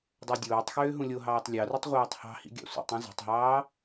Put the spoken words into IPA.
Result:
dˤ o dʲ oː tˤ x øː ɦ ũ lʲ o ɦ ɑː tˤ lʲ ɑ r u tˤ ʁʷ ɑː tˤ h ɑ̤ h ḭ ɡʲ ɑ̰ sʷ ḭ tˤ ĩ z ɑ̤ tˤ ɦ ɑː

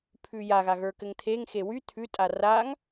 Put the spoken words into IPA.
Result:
pʰ ʉ j a ɣ a ɣ ə˞ k ɘ ŋ t̪ʰ e ŋ x e w y t̪ʰ ʉ tʼ a r a ŋ

